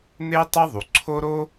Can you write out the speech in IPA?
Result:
n̪e˥ tˤɛ˥ðˤu˩ǀʰo˥ ɾo˥

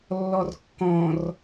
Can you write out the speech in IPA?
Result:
lːɔrkːɔ̃r

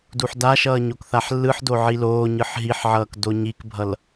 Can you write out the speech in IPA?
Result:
duħdaʃʌː ɲokθaħlːɯħdo ʕiloːɲɯħ ɦiħʕʌːk doɲikbʱʌl

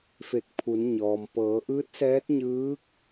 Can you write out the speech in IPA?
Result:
fe˧˩k̚pʰu˩˧nɲɔː˩m pɤː˩˧ʔɯː˧˥t̚sɛː˧˥t̚ ɲɯː˧˥k̚

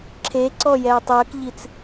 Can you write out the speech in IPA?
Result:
ǁʰeǀɔjɛːtˤ əːkʎit͡s

